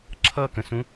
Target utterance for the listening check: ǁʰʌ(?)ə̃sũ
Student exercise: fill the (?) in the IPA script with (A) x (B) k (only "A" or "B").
B